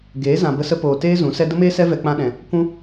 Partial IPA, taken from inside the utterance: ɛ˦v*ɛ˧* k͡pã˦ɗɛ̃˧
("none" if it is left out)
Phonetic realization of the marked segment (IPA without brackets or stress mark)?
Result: ɛ˧